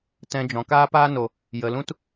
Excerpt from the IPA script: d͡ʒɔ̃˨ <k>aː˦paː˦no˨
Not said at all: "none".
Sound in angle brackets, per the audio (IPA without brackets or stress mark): k